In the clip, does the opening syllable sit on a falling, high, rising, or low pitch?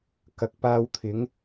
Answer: low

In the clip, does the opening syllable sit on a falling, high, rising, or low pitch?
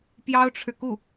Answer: high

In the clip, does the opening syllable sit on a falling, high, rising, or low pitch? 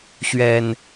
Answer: low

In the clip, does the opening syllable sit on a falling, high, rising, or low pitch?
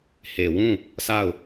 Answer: low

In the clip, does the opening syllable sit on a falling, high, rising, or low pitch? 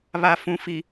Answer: low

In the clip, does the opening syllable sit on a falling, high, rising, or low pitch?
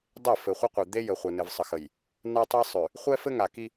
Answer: falling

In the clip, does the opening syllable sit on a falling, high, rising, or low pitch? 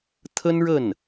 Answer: high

